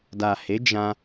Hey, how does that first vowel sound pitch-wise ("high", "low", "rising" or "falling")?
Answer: low